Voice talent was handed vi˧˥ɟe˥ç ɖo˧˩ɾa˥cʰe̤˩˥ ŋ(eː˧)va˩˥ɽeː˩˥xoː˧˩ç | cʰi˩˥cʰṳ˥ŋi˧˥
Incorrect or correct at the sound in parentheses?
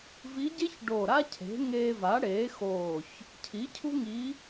correct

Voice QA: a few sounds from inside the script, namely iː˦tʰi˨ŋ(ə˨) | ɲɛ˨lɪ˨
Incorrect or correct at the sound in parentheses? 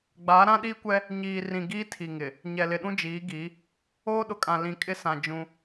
incorrect: ɪ˨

